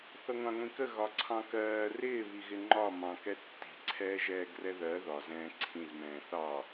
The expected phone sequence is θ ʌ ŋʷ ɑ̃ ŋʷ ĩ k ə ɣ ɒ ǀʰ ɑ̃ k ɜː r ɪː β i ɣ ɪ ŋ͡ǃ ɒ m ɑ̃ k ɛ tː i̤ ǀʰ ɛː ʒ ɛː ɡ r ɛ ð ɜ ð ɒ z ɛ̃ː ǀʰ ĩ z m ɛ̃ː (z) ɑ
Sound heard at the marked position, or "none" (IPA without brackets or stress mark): θ